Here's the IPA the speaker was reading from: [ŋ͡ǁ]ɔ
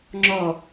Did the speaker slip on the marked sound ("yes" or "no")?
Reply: no